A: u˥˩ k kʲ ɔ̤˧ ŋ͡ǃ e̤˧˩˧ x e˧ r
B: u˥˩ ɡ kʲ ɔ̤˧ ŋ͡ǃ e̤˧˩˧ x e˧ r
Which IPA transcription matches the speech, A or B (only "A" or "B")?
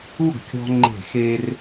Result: B